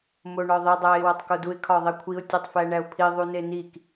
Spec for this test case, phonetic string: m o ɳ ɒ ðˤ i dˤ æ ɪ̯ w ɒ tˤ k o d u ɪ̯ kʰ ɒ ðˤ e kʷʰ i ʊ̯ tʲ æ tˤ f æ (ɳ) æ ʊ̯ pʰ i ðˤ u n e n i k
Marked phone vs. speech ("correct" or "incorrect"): correct